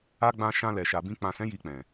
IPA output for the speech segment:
a˦ ɡ͡b ã˧ ʃ ã˧ l ɛ˨ ʃ a˨ b ĩ˧ k͡p ã˨ s ɛ̃˨˦ j i˧ k͡p ɛ̃˨

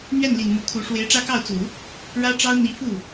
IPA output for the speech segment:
n̪ ɥ ɛ˥˩ n l i˨˩ n m u˧˥ kʰ u˧˥ ʂ w e˧˥ ɪ̯ ʈ͡ʂ ä˥ k ɑ˥˩ ʊ̯ t͡s u˨˩˦ | ɻ ä˥ ʈ͡ʂ ɑ˥ ʊ̯ n̪ i˧˥ f u˥˩

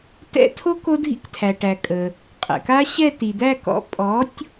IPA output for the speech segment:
t ɛ̰˦˨ tʰ o˦˥ k o˦˥ dʱ ḭ˦˥ k tʰ æ˩ ʈ æ˩ kʼ ə˩ | qʼ ɛ̰˩ k a˦˥ ɕ ɛ˦˨ t i˩ d̪ æ˦˨ k ɔ̰˩˥ pʼ ɔ˩˥ tʲ

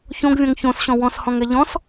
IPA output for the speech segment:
ç õ ɡ vʲ ɔ̃ ŋ ç õ s ɕ ɔ̃ w ɔ̃ s h ɔ̃ ŋ ɛ ʎ ɔ̃ s

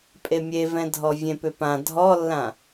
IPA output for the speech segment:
pʼ e mʲ e v ɛ̃ dʱ ɔ vʲ ẽ p ʏ p ã dʱ ɔ lː ã

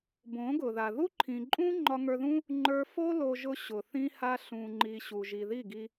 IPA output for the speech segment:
b õ˨˦ ɡ ʊ˨ ð a˨ ð u˦ ǃʰ ĩ˨ ǃʼ ũ˦ ŋ͡ǃ ɒ˧ ŋ ə˞˧ ð ũ˦ | ŋ͡ǃ ə˞˧ f o˦ l o˧ ʒ ʊ˧ ɕ ʊ˨ θ ĩ˧ h a˧ ɬ ũ˨ ŋ͡ǃ i˨ ɕ u˨ ʒ i˨ ð i˦˨ ɡ i˧

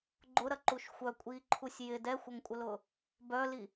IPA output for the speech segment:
ɡ͡ǃ ʊ ɾ ɐ ǃ u ʃ xʷ œ kʷʼ iː ǃʰ u sʲ j ɪ d ɛ xʷ ɐ ŋ kʷʼ ə l ʊː | b œ l i

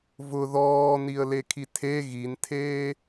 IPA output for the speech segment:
v ʊ ð ɔː n i ə̯ l e kʰ i tʰ e ɣ i n tʰ eː

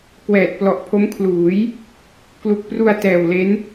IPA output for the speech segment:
k w ɛː˨˩ t̚ p l ɔ˨˩ ʔ pʰ o˦˥ m kʰ l uː˩˦ j | k l u˨˩ k̚ p r u˧ a̯ t ɛː˨˩ w l e˦˥ n

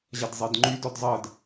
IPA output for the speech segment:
ʑ ɐ d zˤ e d ŋ͡ǃ y d ɔ d zˤ ɜ d

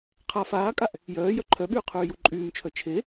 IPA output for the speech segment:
qʰ a f aː kʼ a ʔ | j œː j œ ǃʰ œ ɓ yː qʰ yː j u ǃʼ yː m t͡ʃʰ œ t͡ʃʰ e

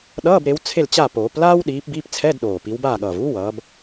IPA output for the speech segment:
ɗ ʌː˧˥˧ b ɾ e˨˦ w t͡sʰ e˥˨ l t͡ɕ a˥˨ p oː˨˩˦ p l aː˥ w ɗ iː˨˦ p b iː˧˥˧ p t͡sʰ ɛ˧˥˧ d ɗ oː˨˩ p i˨˦ w b aː˥˨ ɠ ʌː˨˩ v uː˥ w ʌː˨˦ b

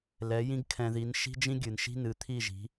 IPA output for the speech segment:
l ɛ˨˦ j ĩ˦ ɡ kʰ ɛ̃˧ ð i˨˦ n ʃ i̤˦ d͡ʒ ĩ˦ ɡʲ ɨ˨ n ʃ i̤˦ n ɨ˨˦ t̪ʰ i˦˨ ʒ i̤˨˦

